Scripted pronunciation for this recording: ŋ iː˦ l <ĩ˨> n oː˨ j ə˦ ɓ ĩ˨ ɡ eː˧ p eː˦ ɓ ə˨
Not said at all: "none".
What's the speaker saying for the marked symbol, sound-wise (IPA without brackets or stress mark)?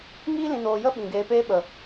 ĩ˨